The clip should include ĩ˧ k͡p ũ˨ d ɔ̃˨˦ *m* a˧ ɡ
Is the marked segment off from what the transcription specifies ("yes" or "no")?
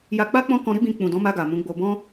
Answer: no